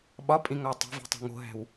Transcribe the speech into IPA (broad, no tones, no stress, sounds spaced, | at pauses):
ɓ ɒ pʼ ĩ ŋ ɒ ə̯ tˤ e̤ v i̤ tˤ æ̤ ŋ o̤ ɦ æ̤ w